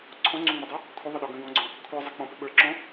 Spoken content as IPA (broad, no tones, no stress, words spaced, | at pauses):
ǀʰɔ̃ŋ͡ǀũŋ͡mʌdˤu | kʷʰəðˤəɗɔ ɡə̃ ɡɔ̃ɡ͡ǀɔ̃ | kʷʰə˞zˤɪ k͡pɔ̃pɪ ɓə˞ǁɔ̃